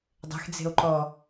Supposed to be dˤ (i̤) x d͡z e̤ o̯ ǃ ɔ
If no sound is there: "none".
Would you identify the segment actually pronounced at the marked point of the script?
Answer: e̤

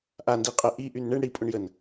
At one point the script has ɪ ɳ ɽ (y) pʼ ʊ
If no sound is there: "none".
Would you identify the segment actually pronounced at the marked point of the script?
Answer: i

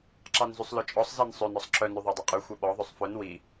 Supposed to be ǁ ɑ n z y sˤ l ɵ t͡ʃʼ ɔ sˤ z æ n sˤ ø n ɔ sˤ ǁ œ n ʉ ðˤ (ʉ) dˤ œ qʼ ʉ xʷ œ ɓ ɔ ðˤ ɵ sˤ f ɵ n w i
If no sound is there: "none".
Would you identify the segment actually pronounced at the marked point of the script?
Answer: ø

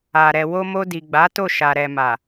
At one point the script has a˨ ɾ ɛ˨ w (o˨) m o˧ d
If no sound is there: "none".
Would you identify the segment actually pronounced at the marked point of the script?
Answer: o˧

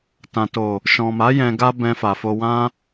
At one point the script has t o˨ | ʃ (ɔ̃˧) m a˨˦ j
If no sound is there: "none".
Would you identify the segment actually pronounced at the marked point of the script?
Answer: ɔ̃˨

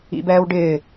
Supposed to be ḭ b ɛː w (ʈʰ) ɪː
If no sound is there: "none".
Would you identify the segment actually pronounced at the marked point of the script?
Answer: ɖ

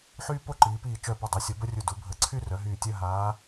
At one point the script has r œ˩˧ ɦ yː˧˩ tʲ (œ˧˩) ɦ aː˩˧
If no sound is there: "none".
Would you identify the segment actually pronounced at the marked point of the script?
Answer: œ˥˧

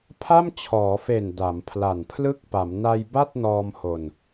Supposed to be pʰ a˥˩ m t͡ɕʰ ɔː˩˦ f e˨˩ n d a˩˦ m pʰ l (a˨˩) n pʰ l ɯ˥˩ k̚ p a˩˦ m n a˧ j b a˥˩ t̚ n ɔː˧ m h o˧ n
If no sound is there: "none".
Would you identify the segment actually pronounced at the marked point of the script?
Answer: a˨˩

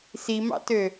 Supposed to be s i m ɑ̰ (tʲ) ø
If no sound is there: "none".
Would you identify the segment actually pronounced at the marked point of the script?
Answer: t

